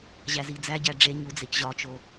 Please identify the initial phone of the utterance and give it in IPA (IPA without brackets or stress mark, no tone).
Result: ʑ